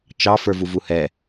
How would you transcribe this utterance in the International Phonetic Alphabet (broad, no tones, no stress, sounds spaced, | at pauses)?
t͡ʃ ɑ f ə˞ v u v u h ɛ